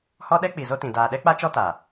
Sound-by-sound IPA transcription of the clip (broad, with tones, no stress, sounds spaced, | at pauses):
h ɔ˦ ɗ ɛ˦ k͡p i˨ z o˦ t ĩ˨ d aː˨ ɗ ɛ˦ k͡p a˦ t͡ʃ ɔ˦ t a˨